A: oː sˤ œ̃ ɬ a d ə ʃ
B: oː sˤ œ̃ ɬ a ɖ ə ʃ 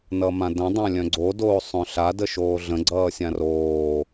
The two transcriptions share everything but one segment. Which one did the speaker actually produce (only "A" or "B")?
A